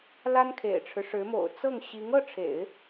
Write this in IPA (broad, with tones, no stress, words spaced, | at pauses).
la˥nkʰḛ˨˩ɪ̯ʈ͡ʂʰɻ̩˦ʂɻ̩˧˥ mo̰˨˩ʊ̯t͡sɤ˥˩ŋ ɕi˧˥ŋɤ˥˩ʈ͡ʂʰḛ˨˩˦ɪ̯